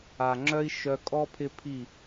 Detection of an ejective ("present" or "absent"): present